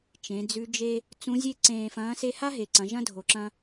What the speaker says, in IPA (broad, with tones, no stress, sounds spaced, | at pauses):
t͡ʃ ẽ˩˧ d͡z ʉ˧˥ d͡ʒ e˥ | t͡s ũ˧˥ zʲ e˥ ǀ ẽː˧ f ɐ̃ː˧˥ s e˥ h a˥ ɦ e˩ ǀ ɐ̃˩˧ ʒ ɐ̃˥ dʱ o˩ ǁ ɐ̃˧